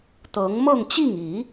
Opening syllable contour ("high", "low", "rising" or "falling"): rising